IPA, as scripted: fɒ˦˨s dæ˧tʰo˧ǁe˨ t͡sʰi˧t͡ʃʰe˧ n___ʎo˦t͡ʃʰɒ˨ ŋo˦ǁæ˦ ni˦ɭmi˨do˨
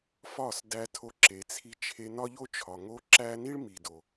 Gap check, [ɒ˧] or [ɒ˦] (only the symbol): ɒ˦